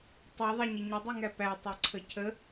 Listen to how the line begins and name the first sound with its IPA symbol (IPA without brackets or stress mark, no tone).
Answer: tˤ